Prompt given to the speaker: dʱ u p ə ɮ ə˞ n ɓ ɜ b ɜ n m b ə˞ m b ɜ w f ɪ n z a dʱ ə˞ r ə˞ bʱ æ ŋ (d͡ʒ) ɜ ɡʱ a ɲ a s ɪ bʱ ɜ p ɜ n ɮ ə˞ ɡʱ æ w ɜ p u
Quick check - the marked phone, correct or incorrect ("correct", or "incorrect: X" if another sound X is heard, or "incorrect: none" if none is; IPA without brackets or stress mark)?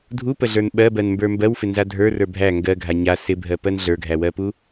incorrect: ɡ